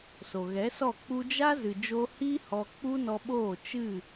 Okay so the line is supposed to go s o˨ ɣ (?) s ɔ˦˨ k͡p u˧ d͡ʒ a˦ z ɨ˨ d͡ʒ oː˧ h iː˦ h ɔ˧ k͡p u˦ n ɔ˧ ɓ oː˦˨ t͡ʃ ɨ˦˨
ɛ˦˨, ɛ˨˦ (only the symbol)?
ɛ˨˦